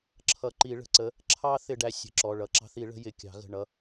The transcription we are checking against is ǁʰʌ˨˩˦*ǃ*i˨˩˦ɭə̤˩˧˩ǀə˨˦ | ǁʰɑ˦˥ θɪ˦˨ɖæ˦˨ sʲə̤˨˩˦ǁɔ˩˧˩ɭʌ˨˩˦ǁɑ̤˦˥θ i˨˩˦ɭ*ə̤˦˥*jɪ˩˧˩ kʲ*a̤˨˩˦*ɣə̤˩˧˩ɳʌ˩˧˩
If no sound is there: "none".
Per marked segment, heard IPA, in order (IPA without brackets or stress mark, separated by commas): ǃ, ə̤˨˦, ɑ̤˨˩˦